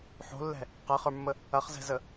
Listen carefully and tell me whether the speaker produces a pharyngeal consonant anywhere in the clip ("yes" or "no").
yes